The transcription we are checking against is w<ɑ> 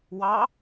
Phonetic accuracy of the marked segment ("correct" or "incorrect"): correct